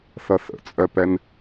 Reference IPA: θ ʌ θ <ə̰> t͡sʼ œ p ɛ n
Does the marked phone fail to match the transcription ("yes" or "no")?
no